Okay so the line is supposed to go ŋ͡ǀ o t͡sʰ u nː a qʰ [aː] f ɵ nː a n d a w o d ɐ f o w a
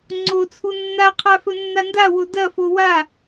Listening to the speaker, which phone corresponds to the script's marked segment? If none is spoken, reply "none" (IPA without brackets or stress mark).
a